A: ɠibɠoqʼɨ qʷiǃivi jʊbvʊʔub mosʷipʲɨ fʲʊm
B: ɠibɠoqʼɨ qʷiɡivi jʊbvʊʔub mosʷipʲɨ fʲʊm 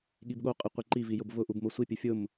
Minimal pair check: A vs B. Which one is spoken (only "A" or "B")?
A